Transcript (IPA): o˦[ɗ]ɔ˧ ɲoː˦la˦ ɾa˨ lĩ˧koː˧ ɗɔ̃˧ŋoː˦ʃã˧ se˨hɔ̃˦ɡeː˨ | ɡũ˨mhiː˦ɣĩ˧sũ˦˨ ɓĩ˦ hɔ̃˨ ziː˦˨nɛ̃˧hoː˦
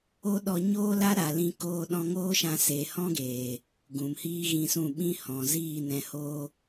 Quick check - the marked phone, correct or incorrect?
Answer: correct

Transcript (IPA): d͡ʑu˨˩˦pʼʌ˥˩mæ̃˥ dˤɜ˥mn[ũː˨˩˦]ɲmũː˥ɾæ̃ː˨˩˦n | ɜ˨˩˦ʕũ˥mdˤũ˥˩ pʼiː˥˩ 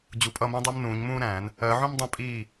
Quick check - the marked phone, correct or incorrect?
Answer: correct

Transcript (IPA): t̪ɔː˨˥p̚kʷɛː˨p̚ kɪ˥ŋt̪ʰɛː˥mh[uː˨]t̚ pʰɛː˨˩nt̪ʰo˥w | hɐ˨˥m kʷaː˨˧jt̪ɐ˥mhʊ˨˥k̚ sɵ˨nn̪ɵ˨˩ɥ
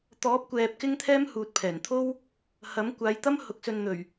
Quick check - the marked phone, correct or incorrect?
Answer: correct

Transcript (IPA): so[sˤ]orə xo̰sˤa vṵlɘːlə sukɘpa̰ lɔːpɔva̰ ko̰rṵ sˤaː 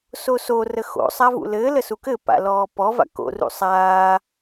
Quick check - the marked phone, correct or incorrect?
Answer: incorrect: s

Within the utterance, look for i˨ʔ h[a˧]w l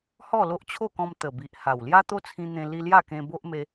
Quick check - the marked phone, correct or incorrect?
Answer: incorrect: a˨˩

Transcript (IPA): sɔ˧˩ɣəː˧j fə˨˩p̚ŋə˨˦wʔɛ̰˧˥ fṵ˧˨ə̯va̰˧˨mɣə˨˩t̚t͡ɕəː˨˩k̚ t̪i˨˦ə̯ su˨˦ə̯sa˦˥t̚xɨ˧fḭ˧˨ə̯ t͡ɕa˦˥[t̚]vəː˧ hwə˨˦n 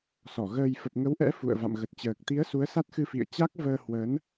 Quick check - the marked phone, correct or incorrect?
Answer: incorrect: k̚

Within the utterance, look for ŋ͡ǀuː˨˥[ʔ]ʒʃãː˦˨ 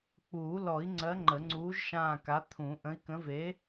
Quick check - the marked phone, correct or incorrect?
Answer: incorrect: none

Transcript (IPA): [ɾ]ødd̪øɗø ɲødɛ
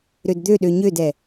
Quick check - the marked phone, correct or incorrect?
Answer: correct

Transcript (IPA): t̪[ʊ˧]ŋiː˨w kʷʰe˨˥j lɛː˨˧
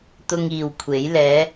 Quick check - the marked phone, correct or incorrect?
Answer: correct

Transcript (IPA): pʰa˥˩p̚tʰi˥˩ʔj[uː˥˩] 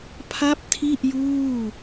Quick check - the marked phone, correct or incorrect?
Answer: correct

